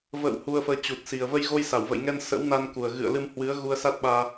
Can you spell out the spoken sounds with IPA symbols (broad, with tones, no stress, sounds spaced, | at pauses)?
v ə̰ː˧˨ w h u˧ ə̯ f əː˧ t͡ɕ u˨˩ t̚ s i˨˩ ə̯ v ə˧ j ɣ o˧ j s a˧˩ w v ə̰˧˨ j ŋ ɛ˧ n s ə̰˧˥ w n a˧ n k u˨˩ ə̯ ɣ ɨ̰˧˨ ə̯ l ɨ˧ m h w ɨ˨˦ ə̯ ɣ u˧ ə̯ s a˦˥ t̚ ɓ aː˧